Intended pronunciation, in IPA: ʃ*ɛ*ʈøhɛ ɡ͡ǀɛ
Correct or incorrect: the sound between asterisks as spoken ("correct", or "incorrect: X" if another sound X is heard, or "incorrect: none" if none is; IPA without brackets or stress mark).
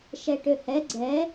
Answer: correct